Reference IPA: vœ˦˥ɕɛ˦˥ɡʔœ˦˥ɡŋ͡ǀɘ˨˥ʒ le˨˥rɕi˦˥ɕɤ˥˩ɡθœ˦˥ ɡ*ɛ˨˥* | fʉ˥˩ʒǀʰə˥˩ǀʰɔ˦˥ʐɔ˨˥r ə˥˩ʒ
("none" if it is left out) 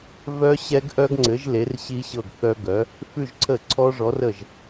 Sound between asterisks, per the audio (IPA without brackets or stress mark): œ˨˥